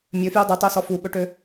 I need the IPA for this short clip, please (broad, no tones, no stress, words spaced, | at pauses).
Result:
mʲøfju dˤutˤosɔ fuɓɵʈø